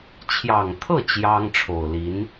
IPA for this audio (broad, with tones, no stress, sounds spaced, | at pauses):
t͡ɕʰ j ɑ˨˩ ŋ t̪ʰ ɤ˥˩ t͡ɕ j ɑ˥ ŋ ʈ͡ʂʰ o˨˩ ʊ̯ l i˧˥ n